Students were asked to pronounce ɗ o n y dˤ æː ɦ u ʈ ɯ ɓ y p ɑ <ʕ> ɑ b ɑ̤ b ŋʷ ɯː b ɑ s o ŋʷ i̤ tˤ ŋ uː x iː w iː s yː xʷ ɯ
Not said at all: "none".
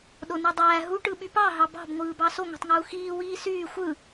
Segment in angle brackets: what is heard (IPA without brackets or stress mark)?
ɦ